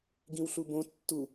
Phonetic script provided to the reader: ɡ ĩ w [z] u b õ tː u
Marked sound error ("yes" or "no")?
yes